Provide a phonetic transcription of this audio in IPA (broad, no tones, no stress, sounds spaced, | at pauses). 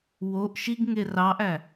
w o ʔ ʃ i ɡ ŋ e r ɑ ʔ æ